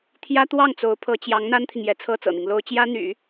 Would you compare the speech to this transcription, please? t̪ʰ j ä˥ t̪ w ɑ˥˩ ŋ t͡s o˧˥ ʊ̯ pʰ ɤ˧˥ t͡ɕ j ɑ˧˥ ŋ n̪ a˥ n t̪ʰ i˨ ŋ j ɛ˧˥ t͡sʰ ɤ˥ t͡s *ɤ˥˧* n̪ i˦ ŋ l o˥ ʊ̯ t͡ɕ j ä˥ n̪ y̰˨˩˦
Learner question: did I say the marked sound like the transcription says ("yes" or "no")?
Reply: no